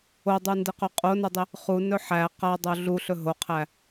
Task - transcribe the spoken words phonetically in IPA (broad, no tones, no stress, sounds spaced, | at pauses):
o dˤ u n d ɪ q ɵ qʼ o n ɵ dˤ ɪ | χ u n ɵ ħ æ q a dˤ o ɮ u ɬ ɵ ɦ o qʰ æ